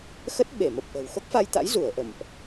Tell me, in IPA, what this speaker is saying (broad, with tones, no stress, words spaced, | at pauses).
xə˦˥t̚ɓe˧˩mə˨˩p̚ʔə̤˨˩w xo˦˥k̚fa˧jt̪a̰˧˥j zu˧˩ə̯ ʔə̰˧˨mʔ